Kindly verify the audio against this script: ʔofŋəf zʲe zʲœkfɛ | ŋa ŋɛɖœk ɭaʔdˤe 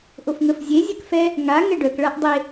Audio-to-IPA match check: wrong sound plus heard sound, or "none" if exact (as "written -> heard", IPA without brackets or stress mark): none